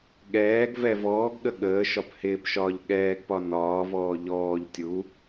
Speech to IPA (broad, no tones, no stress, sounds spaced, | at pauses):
ɠ ɛː ɡ v ɛ v ɔː ɡ ɠ ə ɠ əː ʃ ɒ p h ɪː p ʃ ɒː ʎ ɠ ɛː ɡ p ɒ n ɒː v ɔː ʎ ɔː ʎ tʲ u